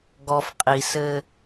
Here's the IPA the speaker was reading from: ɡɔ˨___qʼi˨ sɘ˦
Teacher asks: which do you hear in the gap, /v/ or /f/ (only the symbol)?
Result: f